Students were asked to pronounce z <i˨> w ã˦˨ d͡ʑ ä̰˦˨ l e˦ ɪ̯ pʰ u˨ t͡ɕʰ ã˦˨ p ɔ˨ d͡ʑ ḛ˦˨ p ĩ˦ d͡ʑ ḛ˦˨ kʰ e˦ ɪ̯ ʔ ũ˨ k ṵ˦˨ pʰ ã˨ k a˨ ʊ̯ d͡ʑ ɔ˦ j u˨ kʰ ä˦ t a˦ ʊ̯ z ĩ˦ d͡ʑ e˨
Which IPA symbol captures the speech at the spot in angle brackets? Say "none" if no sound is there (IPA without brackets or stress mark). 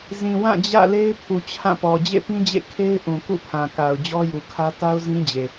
ĩ˨